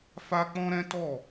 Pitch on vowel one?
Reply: high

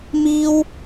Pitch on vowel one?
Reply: high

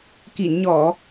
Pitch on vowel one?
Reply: low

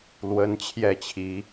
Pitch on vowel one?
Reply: rising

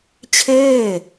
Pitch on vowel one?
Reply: falling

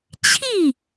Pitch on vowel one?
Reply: falling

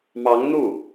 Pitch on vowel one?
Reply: rising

